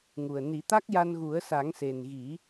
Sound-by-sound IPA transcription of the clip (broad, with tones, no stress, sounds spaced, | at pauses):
ŋ u˨˩ ə̯ n i˨˩˦ t̪ a˦˥ k̚ j a˧ n ɣ u˨˩˦ ə̯ s a˨˩˦ ŋ s e˨˩ n ɣ i˨˩˦